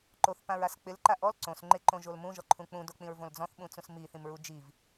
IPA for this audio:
ǃ o θ p ã ɹ a s k͡p ɪ l ǃ a ʔ ɔ l ǀ õ s ŋ͡ǃ ɪ ǃ õ ʒ o l m ũ ʒ ɔ ǃʰ ũ k͡p ũ d o k͡p ĩ ɹ v õ l d͡z ɔ̃ θ ɓ ũ t͡s ũ s m i θ ĩ m ɹ u d͡ʒ i v

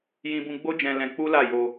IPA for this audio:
j ĩ˧ b ũ˧ ɡ͡b o˦ d͡ʒ ɛ̃˧ l ɛ̃˧ k͡p u˦ l a˦˨ j o˧

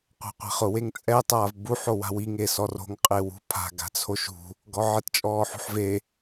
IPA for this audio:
qʷ a̤ qʷ ɛ̤ χ ʊ w e ŋ t͡sʼ ɛ tˤ aː v b u ħ o w a̤ w i ŋ e s ɔ r o̤ ŋ qʼ ɪ w ṳ pʰ a̤ ɡ a̤ t͡sʰ o ʃ ṳ | ɡ ɔ ʕ ɪ t t͡ʃʼ ɔː ħ ṳ ħ v e

